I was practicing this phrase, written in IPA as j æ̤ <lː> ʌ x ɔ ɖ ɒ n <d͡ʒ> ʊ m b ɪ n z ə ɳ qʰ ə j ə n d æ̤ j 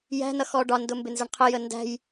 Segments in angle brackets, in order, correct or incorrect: incorrect: n, incorrect: d

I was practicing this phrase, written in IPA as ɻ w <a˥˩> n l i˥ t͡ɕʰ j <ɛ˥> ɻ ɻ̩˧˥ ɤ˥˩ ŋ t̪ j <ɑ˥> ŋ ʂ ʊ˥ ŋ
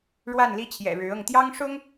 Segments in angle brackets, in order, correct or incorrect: correct, incorrect: ɛ̰˨˩, correct

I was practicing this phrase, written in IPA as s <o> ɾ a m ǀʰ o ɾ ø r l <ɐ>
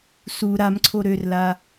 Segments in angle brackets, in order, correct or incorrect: incorrect: u, incorrect: a

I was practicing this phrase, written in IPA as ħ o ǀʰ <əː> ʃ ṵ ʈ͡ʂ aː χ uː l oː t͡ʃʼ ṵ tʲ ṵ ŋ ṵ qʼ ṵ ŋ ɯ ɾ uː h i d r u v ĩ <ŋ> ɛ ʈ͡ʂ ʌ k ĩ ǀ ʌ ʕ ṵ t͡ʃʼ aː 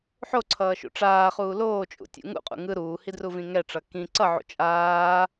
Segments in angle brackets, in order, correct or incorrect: incorrect: ʌː, correct

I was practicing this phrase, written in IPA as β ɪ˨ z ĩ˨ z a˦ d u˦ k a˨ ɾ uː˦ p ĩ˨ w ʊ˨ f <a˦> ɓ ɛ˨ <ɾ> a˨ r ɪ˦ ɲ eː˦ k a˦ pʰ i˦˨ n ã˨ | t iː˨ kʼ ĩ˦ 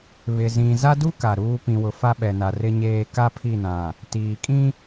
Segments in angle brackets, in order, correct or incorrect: correct, incorrect: n

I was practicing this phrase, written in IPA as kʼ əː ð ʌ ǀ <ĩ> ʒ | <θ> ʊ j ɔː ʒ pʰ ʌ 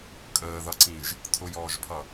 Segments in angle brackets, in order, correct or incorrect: correct, incorrect: tʰ

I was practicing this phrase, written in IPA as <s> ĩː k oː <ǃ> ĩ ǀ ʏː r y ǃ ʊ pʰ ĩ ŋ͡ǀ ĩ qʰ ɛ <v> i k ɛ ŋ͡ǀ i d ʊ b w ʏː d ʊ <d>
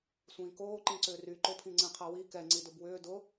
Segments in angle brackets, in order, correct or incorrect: incorrect: sʷ, correct, incorrect: w, incorrect: none

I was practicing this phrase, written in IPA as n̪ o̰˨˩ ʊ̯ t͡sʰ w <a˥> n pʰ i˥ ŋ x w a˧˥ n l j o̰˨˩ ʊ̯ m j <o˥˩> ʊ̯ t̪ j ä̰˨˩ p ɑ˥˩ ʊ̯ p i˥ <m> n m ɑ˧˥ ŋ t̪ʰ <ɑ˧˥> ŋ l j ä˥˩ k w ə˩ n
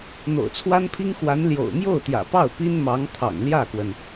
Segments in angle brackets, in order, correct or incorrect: correct, correct, incorrect: none, incorrect: ɑ̰˨˩

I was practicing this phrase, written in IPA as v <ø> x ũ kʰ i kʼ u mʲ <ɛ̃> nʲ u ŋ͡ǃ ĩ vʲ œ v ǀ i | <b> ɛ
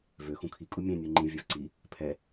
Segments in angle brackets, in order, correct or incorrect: correct, correct, incorrect: pʰ

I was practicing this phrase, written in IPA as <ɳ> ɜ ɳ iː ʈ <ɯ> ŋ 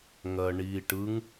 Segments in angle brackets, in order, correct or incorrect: incorrect: ŋ, correct

